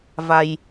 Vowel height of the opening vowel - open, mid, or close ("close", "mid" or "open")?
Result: open